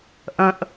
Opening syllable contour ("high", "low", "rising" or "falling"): low